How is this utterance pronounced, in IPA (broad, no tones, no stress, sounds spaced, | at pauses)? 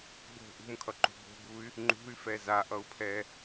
ɡ͡b o̤ ʔ ṳ m kʰ ʌ ǃ ṳ b o̤ b u y̯ | ŋ͡ǃ ṳ y̯ f ɛ z a ʔ ʌ u̯ pʰ ɛ